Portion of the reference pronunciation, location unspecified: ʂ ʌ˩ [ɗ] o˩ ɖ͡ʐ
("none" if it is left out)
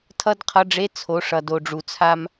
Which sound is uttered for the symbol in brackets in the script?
d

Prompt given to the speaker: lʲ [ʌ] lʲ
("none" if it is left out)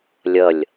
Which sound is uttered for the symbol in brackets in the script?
ʌ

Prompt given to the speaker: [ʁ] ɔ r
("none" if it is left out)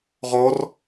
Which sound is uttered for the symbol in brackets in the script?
ʁ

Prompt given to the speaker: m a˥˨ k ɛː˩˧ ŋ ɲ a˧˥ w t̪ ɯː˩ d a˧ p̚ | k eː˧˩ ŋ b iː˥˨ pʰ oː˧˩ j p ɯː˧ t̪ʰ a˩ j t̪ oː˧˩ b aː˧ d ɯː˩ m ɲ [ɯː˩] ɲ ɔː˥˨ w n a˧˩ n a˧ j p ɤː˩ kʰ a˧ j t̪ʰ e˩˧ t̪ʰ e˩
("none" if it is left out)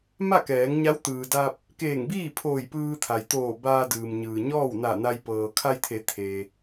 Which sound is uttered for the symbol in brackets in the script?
ɯː˩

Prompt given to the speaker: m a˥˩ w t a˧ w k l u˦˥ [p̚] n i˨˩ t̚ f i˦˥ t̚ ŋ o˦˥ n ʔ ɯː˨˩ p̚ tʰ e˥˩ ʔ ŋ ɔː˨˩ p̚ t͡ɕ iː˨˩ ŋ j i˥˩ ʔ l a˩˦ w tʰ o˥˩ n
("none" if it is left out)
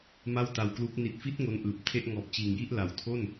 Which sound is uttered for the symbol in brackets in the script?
k̚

